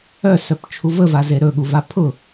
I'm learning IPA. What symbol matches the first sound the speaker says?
œ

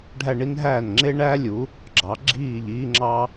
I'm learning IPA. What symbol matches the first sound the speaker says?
ɖʱ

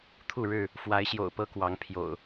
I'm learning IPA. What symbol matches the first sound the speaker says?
t̪ʰ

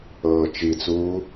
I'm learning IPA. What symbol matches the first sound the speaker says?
ɤː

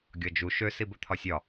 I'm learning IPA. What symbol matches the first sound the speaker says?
ɡʲ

